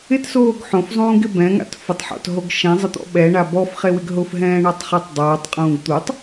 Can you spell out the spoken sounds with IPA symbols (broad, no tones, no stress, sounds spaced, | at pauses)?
ɪ t s oː ɡ ħ õ f zˤ ũː ɡ ɪ b ɛ̃ ŋ a̰ t f ʊ tˤ ħ ɔ̰ t ɦ o ɡ ʃ ɛ̃ zˤ ɪ t̪ ɔ̰ ɓ ɛ ɳ a b ɔ f χ e w ɪ ɡ ɦ ʊ f ɦ ɛ̃ː ɳ a tˤ χ e tˤ dˤ oː tˤ qʼ ũː ɡ t̪ u tˤ